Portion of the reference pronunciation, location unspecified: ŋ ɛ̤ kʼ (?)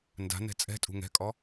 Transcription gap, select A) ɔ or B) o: A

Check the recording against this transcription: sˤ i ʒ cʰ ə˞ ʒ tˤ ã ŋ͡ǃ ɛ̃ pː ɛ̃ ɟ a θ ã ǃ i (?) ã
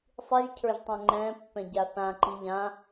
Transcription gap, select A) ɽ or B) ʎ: B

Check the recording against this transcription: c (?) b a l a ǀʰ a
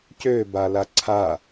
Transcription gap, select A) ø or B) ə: A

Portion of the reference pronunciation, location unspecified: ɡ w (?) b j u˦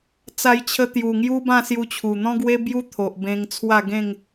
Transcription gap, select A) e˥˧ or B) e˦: B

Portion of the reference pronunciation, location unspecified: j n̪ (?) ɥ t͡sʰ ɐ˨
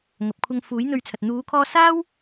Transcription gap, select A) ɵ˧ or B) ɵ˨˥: A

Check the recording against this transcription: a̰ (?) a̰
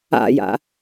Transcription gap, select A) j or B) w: A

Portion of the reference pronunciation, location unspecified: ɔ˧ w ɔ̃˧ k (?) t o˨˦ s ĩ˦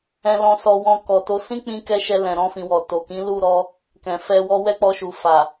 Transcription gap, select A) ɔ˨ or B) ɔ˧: A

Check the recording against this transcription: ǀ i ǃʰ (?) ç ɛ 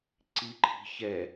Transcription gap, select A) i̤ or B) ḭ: A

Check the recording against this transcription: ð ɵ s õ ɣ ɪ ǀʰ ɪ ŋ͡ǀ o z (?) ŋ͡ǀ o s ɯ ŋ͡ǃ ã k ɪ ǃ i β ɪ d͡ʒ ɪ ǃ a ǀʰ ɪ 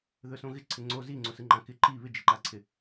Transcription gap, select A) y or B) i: B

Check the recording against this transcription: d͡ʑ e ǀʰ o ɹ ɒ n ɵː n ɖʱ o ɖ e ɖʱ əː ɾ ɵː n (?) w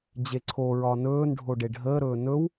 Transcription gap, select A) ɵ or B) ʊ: A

